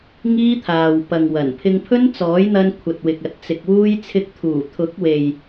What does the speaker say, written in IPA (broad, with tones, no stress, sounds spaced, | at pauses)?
ŋ iː˥ t̪ʰ aː˨ w p ɐ˨ ŋ w ɐ˨˩ n pʰ ɪ˧ ŋ pʰ ɵ˥ n t͡s ɔː˨˥ j n̪ ɐ˧ n kʷʰ ɐ˨ t̚ w ɪ˨ k̚ ɐ˨ t̚ t͡s ɪ˨ k̚ w uː˥ j t͡sʰ ɪ˧ k̚ t̪ʰ uː˨˩ t̪ʰ ʊ˨˥ k̚ w e˨ j